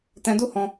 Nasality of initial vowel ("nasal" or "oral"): nasal